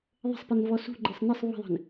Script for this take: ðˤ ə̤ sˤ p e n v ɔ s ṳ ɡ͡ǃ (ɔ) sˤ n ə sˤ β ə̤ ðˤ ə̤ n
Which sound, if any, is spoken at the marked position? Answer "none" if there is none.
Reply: ɤ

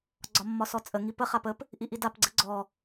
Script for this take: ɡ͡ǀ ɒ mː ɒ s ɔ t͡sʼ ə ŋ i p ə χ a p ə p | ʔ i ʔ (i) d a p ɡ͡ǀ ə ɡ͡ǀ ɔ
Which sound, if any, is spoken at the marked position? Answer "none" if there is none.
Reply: i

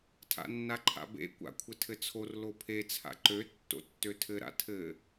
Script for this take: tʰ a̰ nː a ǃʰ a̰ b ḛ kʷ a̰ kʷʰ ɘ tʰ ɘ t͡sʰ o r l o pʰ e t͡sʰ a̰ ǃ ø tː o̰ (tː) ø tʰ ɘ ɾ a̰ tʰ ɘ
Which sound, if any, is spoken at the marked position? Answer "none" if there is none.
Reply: tː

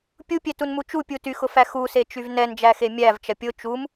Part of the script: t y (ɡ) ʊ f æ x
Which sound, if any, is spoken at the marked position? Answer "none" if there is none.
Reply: x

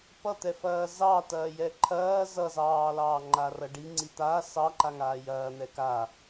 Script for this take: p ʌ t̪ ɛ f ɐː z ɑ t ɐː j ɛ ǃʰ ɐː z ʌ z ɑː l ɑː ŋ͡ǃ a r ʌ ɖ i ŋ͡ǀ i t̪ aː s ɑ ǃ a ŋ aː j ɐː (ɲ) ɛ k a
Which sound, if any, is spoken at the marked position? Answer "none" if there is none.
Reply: n̪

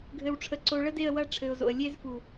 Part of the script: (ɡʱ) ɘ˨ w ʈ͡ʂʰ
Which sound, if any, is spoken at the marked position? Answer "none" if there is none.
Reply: ɡʱ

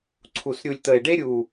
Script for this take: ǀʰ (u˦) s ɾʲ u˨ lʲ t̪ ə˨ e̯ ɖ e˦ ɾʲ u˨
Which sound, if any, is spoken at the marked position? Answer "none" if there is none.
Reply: u˨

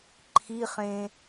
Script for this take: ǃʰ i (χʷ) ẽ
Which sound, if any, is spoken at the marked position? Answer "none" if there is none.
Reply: χ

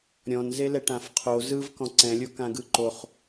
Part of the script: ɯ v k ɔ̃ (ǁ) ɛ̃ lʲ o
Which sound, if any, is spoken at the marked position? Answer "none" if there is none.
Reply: ǀ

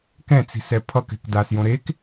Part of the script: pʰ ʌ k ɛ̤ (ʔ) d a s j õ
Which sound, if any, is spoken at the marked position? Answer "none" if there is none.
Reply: k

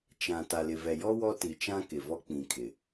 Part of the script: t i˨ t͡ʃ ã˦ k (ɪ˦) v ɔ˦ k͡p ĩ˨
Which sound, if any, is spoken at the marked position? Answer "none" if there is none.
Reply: ɪ˨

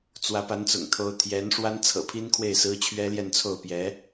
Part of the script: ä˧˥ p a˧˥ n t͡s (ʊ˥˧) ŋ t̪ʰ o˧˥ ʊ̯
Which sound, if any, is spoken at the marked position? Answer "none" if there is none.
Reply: ʊ̰˨˩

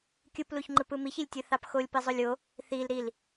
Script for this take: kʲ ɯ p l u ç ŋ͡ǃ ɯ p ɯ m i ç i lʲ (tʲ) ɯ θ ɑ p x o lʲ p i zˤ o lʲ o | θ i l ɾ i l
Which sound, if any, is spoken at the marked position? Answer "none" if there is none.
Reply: tʲ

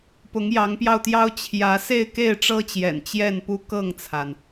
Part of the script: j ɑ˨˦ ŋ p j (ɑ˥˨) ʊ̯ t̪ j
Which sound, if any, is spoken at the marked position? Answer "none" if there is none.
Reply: ɑ˧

